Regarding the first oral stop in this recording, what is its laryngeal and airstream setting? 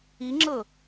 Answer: click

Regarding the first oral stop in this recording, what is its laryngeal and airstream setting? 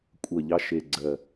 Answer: ejective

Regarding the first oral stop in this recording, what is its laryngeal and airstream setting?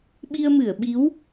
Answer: implosive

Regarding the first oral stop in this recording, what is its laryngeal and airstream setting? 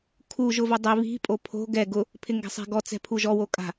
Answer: aspirated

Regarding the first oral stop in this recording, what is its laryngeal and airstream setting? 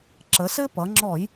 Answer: click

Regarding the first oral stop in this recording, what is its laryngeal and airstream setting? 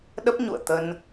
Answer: implosive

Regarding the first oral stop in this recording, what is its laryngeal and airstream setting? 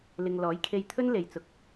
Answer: aspirated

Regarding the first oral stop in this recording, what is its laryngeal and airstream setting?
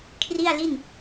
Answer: aspirated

